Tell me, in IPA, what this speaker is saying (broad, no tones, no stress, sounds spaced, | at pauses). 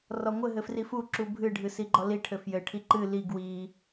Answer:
r ɔ ŋʷ ɘ ɦ ɘ f r i f u ǁ u bʱ ɨ ɖʱ ɨ s i ɡ͡ǃ ɔ l i ʈʰ ɘ f j ɘ ʈʰ i ǃ ɨ l i ɡ w i